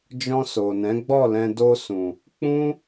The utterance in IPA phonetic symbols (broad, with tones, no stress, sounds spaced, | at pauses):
d͡ʒ ɔ̃˧ s o˨ n ɛ̃˨˦ ɡ͡b ɔ˦˨ l ɛ̃˧ d o˧ s ũ˨ | k͡p ũ˦